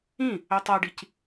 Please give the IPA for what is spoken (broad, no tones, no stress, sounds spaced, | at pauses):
ĩ | ə tˤ a ɖ i c